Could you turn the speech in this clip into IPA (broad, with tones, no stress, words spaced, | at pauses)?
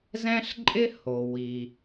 zɛ̃˥ɬǃʼɪ˥ho˩ wi˩